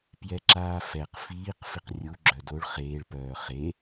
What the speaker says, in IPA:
pjɛǁaːfɛq fiːq fiqrʲu ɡ͡ǁœdoɭ χeːɭ pœːχe

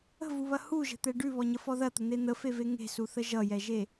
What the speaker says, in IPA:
ə̤vuβɐ huʒə̤t̪ɛ ɖʉβɔɲəfɔ ðɐt̪ən̪e n̪əfeve ŋe̤suθə ʒʌjɛʒe

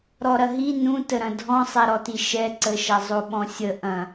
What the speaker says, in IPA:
ɾɔɾɐɦi nũtəɾɐ̃ dʱɔ̃sˤɛɾɔti ʃɛǀəʃɐ zˤoɓɔ̃sʲə ʔɐ̃

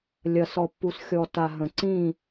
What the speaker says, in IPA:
lʲɐ˨sɔ˨pːu˨s xʲɔ˨ta˨ ɦə̃˨ǀĩ˦˨

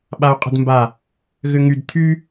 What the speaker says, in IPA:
ɓau̯qʼə̤dmba | ɣʏŋyd t̪ʰy

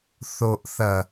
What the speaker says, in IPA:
θo˨ʔθɐ˨

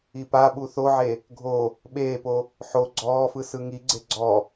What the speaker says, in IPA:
ipaɓu θoʕe | ɡʱo | ɓeːpo | ħo ɡ͡ǀɔːfɯ sɯŋiɡ͡ǀe ɡ͡ǀɔ

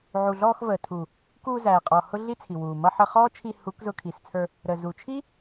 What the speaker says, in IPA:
ʕu˨ɮɔː˧xvəː˨tʰu˨ | kuː˧zæː˨qʼɔ˨ hʊ˦ɮi˦t͡sʰi˨wuː˨ mʌ˧ħə˧χɔː˦t͡ʃʰi˧ hu˨˦kzʊ˧kʰi˨st͡sʰə˞˧ | ɾə˨zu˨t͡ʃʰi˦

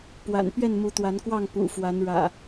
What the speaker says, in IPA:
pwa̰˨˩n pɥɛ˥˨nmu˨˦t̪wa˨˦nkwɑ˥˨ŋ pṵ˨˩ fwa˨˦nɻä̰˨˩

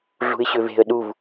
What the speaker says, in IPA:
ɮṳɪ̯ɕøve̤ə̯ ɗuv

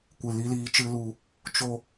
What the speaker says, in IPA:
kʷɨ˨li˧liː˧ t͡ʃɨ˦lu˧ | t͡ʃo˦

